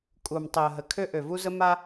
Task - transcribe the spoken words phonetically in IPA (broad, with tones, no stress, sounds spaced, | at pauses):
kʼ u˨ m tˤ e˨ ə̯ ɦ ə˨ kʰ ø˦ ʔ ø˨ v u˦ z ə˦ m a˦